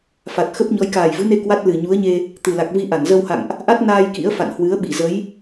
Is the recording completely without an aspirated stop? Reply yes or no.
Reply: yes